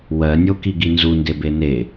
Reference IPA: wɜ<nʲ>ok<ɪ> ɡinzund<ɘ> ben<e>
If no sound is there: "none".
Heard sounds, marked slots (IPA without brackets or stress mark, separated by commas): nʲ, i, e, e